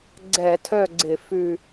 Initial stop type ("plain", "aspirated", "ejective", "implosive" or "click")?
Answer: click